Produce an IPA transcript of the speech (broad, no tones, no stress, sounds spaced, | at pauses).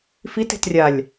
f i t e̤ t rʲ a lʲ